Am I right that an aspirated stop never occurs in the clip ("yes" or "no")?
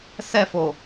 yes